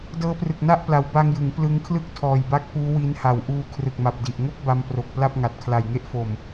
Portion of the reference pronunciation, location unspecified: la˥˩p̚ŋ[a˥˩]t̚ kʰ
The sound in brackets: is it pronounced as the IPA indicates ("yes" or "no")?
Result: no